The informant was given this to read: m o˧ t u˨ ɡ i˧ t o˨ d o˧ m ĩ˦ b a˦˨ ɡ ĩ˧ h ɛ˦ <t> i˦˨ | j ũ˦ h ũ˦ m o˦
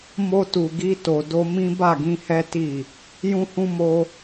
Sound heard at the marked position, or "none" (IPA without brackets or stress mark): t